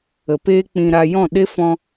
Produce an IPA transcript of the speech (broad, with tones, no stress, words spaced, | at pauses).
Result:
ə˨peː˦k͡pĩ˧ ɾa˧ jɔ̃˦˨ɗe˦ fɔ̃˧